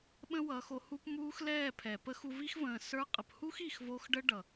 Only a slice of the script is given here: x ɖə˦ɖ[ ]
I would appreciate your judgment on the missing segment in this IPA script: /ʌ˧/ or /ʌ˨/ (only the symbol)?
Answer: ʌ˨